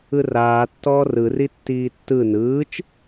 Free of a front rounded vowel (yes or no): yes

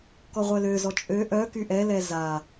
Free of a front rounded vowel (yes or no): no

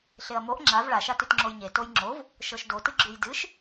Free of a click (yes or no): no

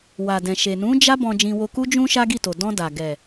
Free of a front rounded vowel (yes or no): yes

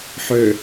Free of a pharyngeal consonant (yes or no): no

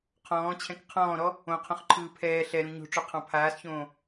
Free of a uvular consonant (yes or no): no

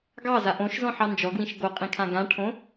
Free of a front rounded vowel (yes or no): yes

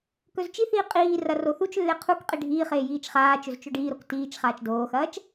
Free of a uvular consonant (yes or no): no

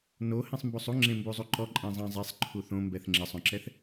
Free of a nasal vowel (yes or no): no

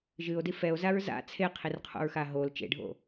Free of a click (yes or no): yes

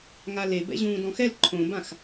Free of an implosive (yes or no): yes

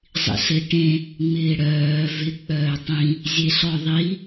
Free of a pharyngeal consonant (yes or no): yes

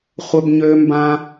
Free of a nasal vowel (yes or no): no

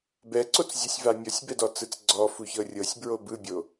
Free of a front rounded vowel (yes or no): yes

